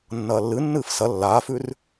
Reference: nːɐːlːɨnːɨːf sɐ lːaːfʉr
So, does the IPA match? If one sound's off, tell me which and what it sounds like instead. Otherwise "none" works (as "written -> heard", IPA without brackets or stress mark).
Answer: none